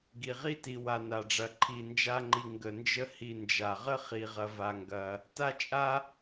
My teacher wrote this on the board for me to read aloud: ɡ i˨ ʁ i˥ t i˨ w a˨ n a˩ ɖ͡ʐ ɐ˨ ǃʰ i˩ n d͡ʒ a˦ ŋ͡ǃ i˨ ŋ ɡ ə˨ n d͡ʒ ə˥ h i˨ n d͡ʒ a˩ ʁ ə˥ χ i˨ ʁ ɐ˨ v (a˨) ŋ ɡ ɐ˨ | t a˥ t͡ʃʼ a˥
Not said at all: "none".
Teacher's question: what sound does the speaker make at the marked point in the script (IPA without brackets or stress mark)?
a˨